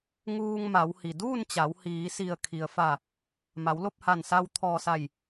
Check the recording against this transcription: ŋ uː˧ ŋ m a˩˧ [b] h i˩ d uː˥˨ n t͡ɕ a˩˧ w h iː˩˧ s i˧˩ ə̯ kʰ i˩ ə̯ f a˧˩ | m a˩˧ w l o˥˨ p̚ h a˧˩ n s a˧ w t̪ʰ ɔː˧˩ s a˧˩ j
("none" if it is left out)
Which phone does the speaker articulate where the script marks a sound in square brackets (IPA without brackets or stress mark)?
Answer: w